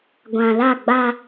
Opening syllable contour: low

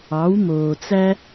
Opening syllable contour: rising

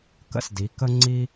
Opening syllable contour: high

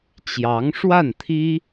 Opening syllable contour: rising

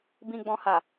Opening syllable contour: low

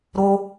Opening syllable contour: high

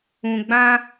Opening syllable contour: low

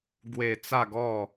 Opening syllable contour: falling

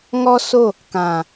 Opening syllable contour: high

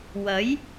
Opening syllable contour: rising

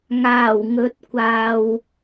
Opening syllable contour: low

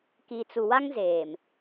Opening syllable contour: low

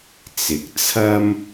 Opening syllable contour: low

